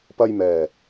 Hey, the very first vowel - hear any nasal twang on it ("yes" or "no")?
no